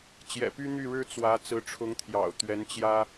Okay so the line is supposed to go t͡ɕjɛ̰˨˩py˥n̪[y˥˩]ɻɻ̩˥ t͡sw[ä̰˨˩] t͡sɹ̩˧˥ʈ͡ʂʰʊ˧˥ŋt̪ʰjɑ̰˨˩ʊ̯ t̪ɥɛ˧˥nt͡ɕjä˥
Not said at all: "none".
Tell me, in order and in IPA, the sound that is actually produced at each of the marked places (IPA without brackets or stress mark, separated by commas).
y˥˩, ä˧˥